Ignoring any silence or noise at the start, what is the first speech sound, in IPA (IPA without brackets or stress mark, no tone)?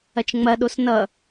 ɐ